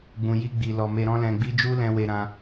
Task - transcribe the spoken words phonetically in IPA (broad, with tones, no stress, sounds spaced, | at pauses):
ɡ͡b ũ˨ j i˧ ɡ͡b i˨ l ɔ˨ m e˧ ɾ ɔ̃˦ l ɛ̃˧ ɡ͡b i˦ d͡ʒ u˦ l ɛ̃˧ w e˧ ɾ ã˧